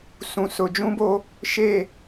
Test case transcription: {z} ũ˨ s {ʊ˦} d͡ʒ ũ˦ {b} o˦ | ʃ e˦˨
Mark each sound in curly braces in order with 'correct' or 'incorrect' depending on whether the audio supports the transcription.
incorrect, incorrect, correct

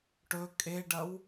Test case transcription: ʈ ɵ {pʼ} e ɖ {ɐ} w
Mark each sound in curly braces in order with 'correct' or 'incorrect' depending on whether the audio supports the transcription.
incorrect, correct

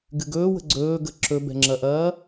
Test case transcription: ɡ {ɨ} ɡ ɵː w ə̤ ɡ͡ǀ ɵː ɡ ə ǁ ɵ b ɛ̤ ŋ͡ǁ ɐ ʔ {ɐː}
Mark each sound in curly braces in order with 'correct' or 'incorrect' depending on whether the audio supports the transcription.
correct, correct

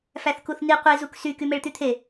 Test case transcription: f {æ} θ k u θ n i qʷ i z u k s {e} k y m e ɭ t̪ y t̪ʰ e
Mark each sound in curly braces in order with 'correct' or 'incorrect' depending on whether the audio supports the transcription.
correct, incorrect

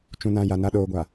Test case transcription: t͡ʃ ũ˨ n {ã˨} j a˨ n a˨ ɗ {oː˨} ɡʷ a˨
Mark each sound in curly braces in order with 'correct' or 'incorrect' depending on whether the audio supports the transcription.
correct, correct

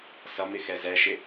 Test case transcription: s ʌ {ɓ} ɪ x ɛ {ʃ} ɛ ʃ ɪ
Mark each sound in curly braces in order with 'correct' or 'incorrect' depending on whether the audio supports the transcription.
incorrect, incorrect

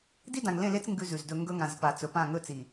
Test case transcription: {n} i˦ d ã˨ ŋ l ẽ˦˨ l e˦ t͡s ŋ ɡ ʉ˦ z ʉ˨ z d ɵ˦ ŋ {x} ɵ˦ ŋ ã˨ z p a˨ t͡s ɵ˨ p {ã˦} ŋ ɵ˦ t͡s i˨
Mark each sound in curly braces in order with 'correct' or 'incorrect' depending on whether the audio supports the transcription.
incorrect, incorrect, incorrect

